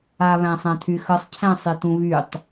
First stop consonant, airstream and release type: aspirated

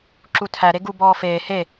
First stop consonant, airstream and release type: click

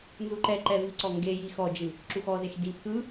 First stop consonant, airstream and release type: click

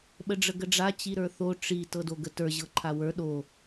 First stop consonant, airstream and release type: implosive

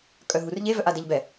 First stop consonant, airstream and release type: ejective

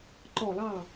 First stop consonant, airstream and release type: click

